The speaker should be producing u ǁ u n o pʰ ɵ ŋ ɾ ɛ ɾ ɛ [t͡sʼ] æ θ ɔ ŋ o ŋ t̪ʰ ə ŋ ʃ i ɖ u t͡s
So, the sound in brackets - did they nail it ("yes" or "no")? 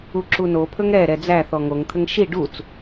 no